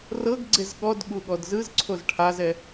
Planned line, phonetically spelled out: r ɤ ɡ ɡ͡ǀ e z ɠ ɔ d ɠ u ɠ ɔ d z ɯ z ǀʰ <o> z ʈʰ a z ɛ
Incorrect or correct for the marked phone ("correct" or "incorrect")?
correct